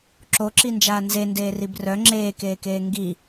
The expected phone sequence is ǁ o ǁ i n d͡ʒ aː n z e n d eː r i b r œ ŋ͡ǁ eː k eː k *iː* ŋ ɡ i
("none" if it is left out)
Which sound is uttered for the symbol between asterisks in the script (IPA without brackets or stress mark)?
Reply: eː